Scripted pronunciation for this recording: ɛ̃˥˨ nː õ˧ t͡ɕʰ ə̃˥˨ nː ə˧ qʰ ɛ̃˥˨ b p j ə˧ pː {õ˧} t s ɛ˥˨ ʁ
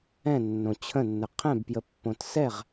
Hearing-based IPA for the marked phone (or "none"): õ˧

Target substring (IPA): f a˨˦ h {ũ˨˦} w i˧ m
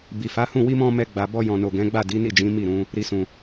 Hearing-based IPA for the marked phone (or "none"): ũ˦˨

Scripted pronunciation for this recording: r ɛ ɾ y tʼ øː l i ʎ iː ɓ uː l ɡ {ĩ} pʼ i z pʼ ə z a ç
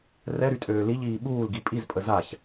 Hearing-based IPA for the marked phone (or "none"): i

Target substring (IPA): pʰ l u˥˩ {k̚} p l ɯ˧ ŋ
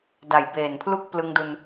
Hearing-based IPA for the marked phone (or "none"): k̚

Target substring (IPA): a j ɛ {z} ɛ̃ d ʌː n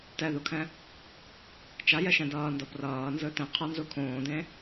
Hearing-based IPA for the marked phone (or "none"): ʃ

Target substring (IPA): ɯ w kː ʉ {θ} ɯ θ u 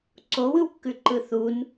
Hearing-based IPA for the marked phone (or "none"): ǃ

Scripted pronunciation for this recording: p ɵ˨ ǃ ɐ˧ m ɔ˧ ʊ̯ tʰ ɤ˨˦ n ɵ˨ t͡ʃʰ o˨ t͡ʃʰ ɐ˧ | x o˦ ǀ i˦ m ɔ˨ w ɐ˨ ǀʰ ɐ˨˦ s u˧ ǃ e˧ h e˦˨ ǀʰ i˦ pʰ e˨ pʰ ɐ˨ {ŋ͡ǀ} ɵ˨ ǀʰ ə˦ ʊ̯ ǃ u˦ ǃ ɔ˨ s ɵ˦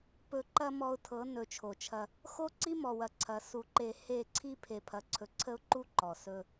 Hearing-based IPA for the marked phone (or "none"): ǀʰ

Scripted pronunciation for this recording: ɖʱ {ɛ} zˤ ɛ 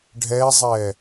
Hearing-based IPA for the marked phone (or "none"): ɛ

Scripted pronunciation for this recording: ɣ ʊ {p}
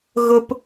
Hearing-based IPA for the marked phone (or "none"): p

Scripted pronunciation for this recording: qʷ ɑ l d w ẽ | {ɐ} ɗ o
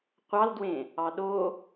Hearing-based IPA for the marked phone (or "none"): ɑ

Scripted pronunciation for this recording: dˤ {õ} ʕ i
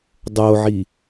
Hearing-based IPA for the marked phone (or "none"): o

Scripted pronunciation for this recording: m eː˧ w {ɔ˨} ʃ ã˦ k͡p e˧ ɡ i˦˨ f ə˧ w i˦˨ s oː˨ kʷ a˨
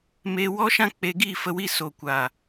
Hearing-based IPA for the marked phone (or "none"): ɔ˦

